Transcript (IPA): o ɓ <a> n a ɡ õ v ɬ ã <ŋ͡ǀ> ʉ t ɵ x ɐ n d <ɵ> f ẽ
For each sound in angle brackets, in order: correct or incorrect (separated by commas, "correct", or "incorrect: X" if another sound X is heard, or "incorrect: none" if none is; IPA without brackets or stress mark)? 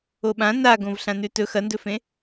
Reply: incorrect: ã, incorrect: n, correct